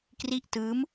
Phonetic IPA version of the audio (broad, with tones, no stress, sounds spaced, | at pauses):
k r i˥˩ ʔ t ɯː˦˥ m